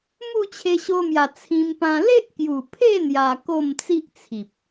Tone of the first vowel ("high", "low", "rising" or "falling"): falling